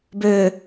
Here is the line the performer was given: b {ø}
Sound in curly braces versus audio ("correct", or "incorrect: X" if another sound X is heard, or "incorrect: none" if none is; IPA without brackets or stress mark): correct